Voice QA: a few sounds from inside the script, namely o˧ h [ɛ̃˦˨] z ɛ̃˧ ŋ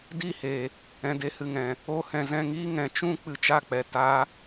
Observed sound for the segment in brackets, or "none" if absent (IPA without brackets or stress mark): ɛ̃˨